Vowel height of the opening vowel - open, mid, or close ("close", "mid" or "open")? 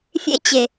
mid